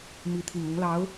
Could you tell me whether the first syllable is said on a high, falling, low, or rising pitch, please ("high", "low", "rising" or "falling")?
rising